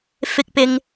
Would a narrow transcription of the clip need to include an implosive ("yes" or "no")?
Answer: no